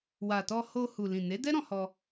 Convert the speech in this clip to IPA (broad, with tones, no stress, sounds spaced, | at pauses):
w a˨ t ɔ˧ h o˧ h u˨ l ĩ˨ n e˨˦ d ɛ˦ ɾ ɔ̃˧ h ɔ˧